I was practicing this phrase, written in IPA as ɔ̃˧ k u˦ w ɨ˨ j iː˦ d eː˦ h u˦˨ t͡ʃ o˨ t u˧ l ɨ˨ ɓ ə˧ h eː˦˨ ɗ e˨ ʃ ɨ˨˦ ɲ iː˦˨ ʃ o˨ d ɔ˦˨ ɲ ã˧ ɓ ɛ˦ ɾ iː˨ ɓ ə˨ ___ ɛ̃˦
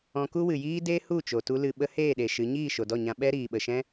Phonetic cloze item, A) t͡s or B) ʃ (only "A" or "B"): B